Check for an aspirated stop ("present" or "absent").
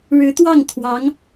present